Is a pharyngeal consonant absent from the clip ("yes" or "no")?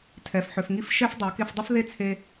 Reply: no